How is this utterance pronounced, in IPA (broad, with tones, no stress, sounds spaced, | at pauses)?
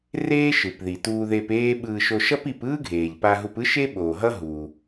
r eː˥ ʃ ɯ˩ p ð i˩ t uː˧ ð e˧ p eː˥ ɓ ɯː˧ ʃ o˧ ʃ ʌ˥ p i˧ p ɯː˥ ɡʱ eː˩ ʎ p a˧ ɦ u˧ p ɯ˥ ʃ e˥ ɓ oː˩ ɦ ʌ˥ ɦ uː˩